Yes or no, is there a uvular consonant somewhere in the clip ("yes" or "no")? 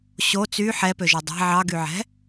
no